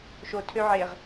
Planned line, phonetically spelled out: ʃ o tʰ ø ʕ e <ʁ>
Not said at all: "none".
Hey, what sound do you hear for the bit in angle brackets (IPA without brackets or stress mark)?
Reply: ʁ